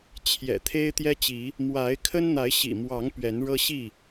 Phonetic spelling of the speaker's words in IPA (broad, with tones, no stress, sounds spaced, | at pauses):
t͡ɕʰ j ɛ̰˨˩ t̪ʰ e˦ ɪ̯ t̪ j ɛ˦ t͡ɕ i˨˦ | m w a˨˦ ɪ̯ kʰ ə˦ n n̪ a˨˦ ɪ̯ ɕ ḭ˨˩ m w ɑ˨˦ ŋ p ɥ ɛ˨˦ n ɻ ɤ˦ ɕ i˥˨